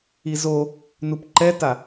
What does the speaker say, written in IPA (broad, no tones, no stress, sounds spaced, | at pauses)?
i z o | n u p ǃ ɛ t a